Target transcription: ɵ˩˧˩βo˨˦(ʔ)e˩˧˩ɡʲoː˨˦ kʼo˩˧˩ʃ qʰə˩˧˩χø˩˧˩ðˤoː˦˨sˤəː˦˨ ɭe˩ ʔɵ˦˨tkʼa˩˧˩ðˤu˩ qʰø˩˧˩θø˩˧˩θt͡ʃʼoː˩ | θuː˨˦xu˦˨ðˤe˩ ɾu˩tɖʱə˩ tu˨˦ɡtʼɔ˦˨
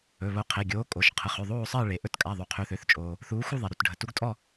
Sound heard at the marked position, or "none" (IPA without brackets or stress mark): qʰ